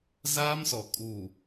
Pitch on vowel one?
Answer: high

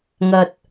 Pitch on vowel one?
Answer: low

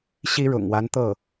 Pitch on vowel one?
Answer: high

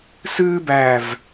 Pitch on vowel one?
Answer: high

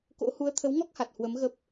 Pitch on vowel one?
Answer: rising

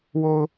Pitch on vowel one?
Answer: low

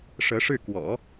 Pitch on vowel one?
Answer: rising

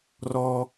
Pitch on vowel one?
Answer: high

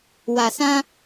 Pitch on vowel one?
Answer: low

